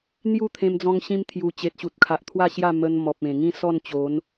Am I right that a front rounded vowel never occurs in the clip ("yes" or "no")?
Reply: yes